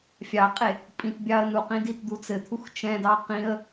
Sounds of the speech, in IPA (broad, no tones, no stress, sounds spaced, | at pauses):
fʲ ɑ qʼ e | pʼ ĩ t bʲ ɑ ə̯ n u q ĩ d i t d̪ u t͡s ɘ t̪ʰ u x t͡ʃ ɛ̃ d ɑ q ĩ ə̯